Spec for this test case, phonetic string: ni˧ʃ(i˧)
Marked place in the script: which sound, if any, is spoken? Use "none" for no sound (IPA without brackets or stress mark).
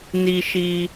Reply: i˧